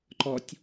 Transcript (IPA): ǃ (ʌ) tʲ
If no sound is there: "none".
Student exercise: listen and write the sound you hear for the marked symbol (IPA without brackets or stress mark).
ɔ